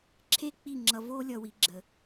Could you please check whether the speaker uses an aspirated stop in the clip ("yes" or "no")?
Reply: yes